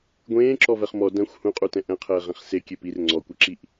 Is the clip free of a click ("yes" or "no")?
no